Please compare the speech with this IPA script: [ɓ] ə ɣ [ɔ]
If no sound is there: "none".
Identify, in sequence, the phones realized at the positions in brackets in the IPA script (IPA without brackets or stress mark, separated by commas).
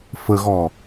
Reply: f, ɔ